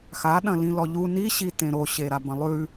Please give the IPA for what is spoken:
x a ɗ ɐ̃ l ĩ l ɔ ʎ u n i ɕ i t ẽ ɾ o ɕ e ɾ a b ɐ̃ lˠ ʉ

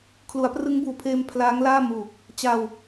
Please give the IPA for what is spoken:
kʰ l u˩˦ a̯ p r ɯ˦˥ ŋ b uː˨˩ pʰ eː˧ m pʰ l aː˦˥ ŋ l aː˥˩ m uː˨˩ k̚ | t͡ɕ a˧ w

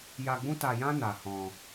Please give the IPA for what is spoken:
j a˧ ɡ͡b ũ˦ t a˧ j ã˦ n a˧ h ɔ̃˧

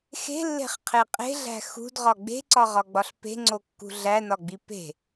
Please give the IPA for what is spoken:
x e̤ lː e̤ χ qʰ e qʼ e̤ ɮ æ̤ x ṳ d ʁ ɒ ɡ͡b e̤ ǀ ɒ ʁ ɒ ɡ͡b ɒ ɬ p e̤ ŋ͡ǀ o kː ṳ ɮ æ n ɒ ɡ͡b i p e̤

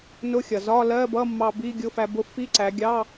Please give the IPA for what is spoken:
n ʊ˧˥˧ xʲ ʌ˩ z ɒ˧˥˧ l ɜ˧˥˧ b ʌ˧˥˧ mː ɑ˧ b i˧˥˧ ɡʲ ʊ˧˥˧ f æ˧ b ʊ˧ f i˧˥˧ ǀ æ˩˧ ɡʲ ɑ˧˥˧

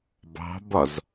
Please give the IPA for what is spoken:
b ɑ̤ b ɒ z

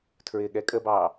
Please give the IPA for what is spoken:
tʰ ɹ ɪː ɠ ɛ kʼ ə b ɑː

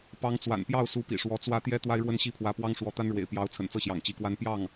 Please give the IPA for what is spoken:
p ɑ˧˥ ŋ t͡s w a̰˨˩ n p j ɑ˥˩ ʊ̯ s u˧˥ p ḭ˨˩ ʂ w ɔ˧˥ t͡s w ä˥ t̪ j ɛ˥ t̪ w a˥ ɪ̯ ɻ w ə˥ n ɕ i˥˩ pʰ w ä˧˥ p w ɑ˥ ŋ ʂ w ɔ˧˥ t̪ a˥ n ɻ w ḛ˨˩ ɪ̯ p j ɑ˧˥ ʊ̯ t͡sʰ ə̰˨˩ n t͡s ɤ˥˩ ɕ j ɑ̰˨˩ ŋ t͡ɕ i˧˥ k w a˥ n p j ɑ˥˩ ŋ

